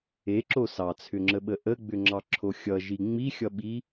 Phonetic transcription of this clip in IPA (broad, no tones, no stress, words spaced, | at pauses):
eǁo sɑt͡sʰʏŋ͡ǁəɓə ʔəɡ͡bʏŋ͡ǁɑǁʰo xʲʌʒi ŋ͡mixʲʌɓi